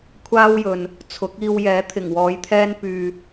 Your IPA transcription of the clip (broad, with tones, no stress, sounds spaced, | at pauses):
kʷʰ aː˥ w j ɵ˨ n | t͡sʰ ʊ˨˥ k̚ iː˧ w j ɛː˨˥ t̪ʰ ɪ˨˩ ŋ w ɔː˨ j t̪ʰ ɛː˥ n p yː˧